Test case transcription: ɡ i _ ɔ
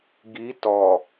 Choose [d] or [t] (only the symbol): t